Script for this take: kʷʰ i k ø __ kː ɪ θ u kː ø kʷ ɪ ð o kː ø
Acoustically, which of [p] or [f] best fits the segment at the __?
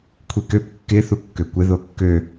p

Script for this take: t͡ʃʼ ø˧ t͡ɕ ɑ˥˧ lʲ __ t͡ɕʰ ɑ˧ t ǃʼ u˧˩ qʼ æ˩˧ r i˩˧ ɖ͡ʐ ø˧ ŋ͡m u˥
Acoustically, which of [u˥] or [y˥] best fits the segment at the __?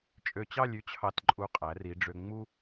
y˥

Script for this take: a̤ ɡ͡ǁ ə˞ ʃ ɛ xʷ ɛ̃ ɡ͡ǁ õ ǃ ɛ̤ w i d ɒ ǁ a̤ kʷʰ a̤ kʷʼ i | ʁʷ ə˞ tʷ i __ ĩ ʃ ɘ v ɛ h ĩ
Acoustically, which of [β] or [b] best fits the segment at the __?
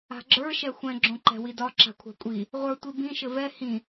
b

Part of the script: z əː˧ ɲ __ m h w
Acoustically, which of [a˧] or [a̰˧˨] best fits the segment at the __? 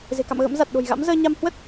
a˧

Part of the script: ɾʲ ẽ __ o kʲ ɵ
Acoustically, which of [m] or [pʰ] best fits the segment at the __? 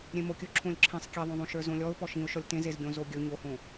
m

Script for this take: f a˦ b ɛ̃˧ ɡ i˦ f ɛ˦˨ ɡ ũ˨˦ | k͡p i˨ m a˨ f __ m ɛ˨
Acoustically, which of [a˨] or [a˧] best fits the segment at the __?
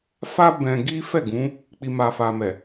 a˨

